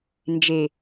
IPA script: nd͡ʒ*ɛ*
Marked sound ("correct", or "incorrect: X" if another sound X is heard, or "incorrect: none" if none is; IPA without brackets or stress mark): incorrect: e